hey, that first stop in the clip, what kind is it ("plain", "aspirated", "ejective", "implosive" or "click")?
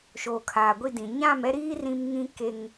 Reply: aspirated